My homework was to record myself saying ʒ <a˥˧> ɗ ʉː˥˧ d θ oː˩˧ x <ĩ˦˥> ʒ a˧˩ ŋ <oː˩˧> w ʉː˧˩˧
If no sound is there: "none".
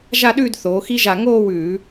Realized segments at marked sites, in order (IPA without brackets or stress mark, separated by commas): a˥˧, i˦˥, oː˥˧